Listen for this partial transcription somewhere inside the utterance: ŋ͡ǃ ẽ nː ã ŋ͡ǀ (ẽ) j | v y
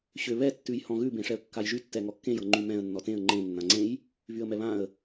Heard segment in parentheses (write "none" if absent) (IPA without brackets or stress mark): ẽ